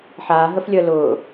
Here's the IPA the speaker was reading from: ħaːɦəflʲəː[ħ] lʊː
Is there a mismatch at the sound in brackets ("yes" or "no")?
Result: yes